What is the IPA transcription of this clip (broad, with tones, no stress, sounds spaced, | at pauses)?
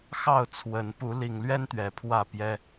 x ɑ˥˨ ʊ̯ t͡sʰ w ə˨˦ n p u˨˦ l i˨˩ ŋ l ɥ ɛ˦ n t̪ ɥ ɛ˨˩ pʰ w ä˥˨ p j ɛ˦